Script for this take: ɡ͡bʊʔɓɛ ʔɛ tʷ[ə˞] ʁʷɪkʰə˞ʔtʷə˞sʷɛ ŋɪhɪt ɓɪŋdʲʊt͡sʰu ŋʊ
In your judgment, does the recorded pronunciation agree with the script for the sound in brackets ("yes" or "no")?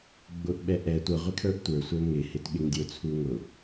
no